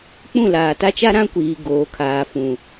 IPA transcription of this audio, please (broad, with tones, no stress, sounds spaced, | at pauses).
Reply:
k͡p ũ˦˨ l aː˨ t a˦ t͡ʃ a˦ ɾ ã˦ kʷ iː˨ ɡ oː˨ kʰ aː˨ f ũ˨